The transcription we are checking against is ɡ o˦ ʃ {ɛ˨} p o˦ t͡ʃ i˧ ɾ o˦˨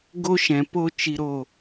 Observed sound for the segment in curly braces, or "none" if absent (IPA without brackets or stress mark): ɛ̃˨